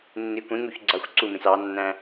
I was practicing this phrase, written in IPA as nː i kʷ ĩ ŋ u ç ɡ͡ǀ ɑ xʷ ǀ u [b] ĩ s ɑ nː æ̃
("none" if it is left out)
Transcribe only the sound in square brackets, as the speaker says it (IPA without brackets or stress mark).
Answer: m